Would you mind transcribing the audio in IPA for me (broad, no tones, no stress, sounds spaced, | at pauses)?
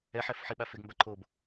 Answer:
ɛ ħ ɛ f ħ i ɓ a f e ɡ m b a ǃʰ o b